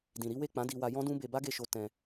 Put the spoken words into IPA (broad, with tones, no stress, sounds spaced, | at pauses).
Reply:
d ĩ˨ ɾ i˨˦ w e˦˨ k͡p ã˨˦ d i˧ w a˧ j ɔ̃˦ d ũ˦ b e˧ b a˦ ɡ e˧ ʃ o˧ t ɛ̃˧